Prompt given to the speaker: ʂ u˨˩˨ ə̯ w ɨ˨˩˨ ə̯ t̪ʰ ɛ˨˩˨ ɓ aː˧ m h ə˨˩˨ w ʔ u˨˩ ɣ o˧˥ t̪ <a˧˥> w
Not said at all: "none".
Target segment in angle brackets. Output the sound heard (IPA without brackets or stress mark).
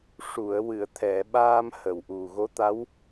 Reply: a˧˥